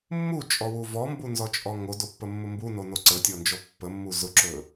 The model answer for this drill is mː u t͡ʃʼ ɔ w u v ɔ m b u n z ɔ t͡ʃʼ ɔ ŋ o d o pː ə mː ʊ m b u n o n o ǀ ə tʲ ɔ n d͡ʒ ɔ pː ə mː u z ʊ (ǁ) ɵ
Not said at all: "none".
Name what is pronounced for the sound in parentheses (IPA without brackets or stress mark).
ǁ